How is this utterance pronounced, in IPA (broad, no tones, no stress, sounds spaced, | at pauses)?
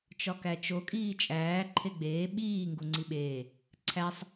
t͡ʃ ɒ k æ t͡ʃ o kʼ iː t͡ʃʼ æː ǃʰ e ɡ͡b eː ɓ iː ŋ ɡ u ŋ͡ǀ i ɓ eː | ǀʰ æ sˤ